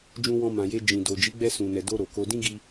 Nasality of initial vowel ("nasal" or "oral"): nasal